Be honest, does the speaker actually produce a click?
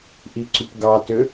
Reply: yes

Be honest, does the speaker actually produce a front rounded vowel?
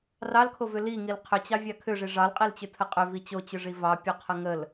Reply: yes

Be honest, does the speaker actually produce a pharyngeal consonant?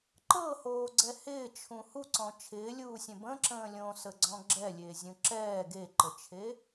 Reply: no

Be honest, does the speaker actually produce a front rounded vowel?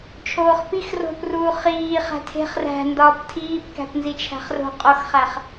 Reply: no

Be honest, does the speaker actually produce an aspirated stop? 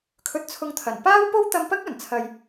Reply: yes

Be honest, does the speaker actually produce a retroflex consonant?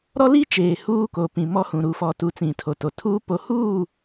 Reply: no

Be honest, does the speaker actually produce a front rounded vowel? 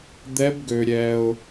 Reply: yes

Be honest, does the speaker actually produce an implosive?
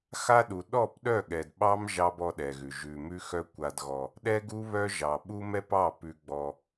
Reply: yes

